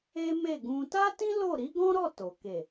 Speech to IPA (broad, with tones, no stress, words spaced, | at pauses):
e˦me˦˨ɡũ˧ ta˦ tĩ˦ lo˦˨ɾi˨˦ɡɔ̃˦ɾɔ˦˨ to˨ ke˨